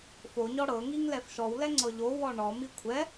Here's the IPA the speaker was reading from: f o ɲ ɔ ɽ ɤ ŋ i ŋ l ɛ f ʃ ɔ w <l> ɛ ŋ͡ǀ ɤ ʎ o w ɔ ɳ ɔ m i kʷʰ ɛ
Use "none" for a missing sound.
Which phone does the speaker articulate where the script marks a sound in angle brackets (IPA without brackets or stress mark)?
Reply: l